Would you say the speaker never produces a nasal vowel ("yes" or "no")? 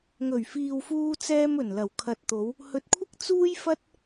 yes